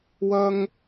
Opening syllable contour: high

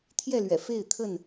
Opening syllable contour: falling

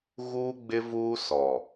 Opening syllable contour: high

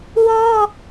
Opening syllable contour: high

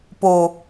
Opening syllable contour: low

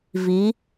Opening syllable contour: rising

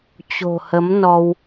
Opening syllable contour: low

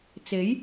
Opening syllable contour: rising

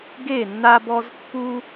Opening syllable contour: falling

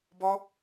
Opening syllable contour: high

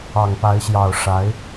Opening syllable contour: low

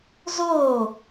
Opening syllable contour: falling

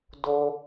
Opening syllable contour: high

